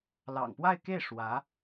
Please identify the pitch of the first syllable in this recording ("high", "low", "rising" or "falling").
low